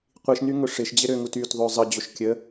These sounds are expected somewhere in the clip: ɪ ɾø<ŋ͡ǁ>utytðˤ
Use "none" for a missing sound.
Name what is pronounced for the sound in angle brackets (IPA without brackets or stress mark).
ŋ